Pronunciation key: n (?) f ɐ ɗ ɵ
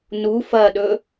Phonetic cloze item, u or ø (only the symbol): u